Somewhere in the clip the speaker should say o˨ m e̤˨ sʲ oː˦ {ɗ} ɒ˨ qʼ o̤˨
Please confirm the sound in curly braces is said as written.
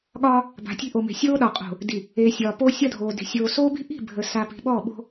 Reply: yes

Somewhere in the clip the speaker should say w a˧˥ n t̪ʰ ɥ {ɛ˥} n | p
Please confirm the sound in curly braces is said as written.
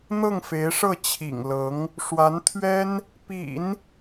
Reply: yes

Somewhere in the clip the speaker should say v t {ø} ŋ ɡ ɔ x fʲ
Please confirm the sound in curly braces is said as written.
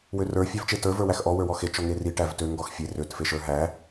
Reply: yes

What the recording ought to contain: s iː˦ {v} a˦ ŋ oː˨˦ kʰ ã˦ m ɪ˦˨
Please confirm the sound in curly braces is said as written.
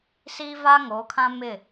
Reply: yes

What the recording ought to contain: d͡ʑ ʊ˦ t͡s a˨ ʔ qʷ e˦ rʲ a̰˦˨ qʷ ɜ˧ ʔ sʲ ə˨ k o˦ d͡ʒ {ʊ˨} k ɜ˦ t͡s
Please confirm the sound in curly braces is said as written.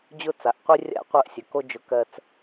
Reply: no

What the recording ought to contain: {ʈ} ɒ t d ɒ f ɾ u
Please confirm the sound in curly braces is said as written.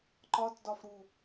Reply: no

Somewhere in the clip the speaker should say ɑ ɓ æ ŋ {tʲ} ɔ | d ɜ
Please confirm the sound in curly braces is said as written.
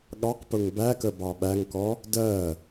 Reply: no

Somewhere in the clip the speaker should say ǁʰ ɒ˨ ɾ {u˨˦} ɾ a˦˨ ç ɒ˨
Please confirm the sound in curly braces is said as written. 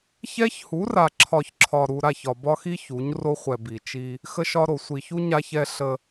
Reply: no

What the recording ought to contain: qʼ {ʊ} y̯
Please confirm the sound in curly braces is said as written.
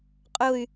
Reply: yes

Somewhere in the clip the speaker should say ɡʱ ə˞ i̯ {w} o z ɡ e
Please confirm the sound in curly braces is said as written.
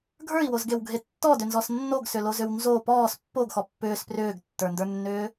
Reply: yes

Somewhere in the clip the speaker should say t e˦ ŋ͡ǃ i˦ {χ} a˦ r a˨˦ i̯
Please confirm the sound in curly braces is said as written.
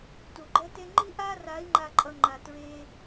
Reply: no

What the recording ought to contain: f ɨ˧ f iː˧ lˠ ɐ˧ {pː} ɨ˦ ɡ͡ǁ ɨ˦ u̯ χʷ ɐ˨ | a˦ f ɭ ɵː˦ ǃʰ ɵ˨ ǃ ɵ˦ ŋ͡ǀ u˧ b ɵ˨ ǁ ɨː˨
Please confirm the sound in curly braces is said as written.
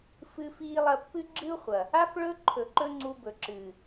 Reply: yes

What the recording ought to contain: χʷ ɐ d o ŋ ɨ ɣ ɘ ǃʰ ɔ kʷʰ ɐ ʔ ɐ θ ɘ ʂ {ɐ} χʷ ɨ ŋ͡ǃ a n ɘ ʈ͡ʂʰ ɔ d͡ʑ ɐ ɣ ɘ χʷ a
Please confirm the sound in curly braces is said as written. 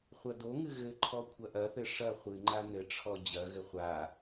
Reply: yes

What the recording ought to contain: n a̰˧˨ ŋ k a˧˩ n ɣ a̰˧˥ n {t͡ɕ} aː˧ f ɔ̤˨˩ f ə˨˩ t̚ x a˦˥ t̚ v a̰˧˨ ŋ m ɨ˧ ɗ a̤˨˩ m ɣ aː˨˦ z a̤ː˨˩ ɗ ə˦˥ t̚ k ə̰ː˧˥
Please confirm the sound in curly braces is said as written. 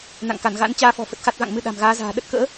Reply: yes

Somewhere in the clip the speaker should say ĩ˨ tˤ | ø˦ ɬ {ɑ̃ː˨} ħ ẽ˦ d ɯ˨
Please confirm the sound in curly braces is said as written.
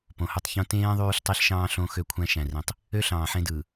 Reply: yes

